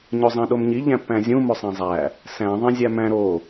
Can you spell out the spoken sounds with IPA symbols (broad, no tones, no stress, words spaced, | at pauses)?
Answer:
ɲozˤæ̃ɗomɲi ʎæ̃pːæ̃zʲũ mosˤæ̃zˤæ | sæ̃ ðˤẽzʲæmæ̃ ɾo